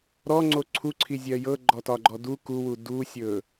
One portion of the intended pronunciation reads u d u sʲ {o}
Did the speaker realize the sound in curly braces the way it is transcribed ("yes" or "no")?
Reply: no